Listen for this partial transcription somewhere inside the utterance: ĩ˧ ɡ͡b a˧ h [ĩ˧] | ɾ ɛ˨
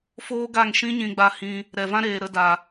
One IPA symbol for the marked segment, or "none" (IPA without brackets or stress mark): ĩ˧